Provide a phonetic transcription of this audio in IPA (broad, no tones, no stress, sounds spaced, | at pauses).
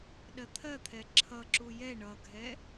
ɗ ɜ t̪ʰ ɜ t̪ʰ ɛ ǁʰ ʌ ǁ u j ɛ ɳ ʌ ɡʱ ɛ